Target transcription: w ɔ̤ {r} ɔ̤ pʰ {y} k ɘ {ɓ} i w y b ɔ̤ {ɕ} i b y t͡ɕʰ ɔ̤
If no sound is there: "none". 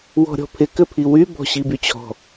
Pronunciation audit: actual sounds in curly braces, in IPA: ɾʲ, ɪ, pʰ, ɕ

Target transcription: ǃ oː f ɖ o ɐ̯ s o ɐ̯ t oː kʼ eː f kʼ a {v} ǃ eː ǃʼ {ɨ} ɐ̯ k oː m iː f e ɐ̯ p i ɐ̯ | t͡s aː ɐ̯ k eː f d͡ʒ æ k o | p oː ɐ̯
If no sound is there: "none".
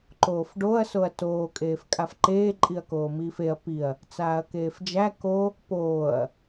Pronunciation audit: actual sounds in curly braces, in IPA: f, i

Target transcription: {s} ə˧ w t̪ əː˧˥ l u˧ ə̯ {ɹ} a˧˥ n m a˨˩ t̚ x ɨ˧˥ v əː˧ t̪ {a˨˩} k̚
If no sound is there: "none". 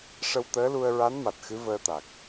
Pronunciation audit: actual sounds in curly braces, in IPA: ʂ, ɹ, a˨˩

